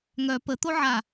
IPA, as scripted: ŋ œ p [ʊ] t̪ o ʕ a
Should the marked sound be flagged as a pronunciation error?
yes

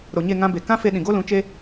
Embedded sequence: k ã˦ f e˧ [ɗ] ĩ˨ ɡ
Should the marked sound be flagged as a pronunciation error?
no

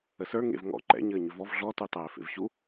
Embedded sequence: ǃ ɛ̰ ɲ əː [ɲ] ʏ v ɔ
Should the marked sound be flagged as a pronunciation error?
no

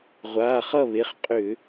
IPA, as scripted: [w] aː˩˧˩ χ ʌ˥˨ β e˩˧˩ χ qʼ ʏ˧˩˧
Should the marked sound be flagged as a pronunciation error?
yes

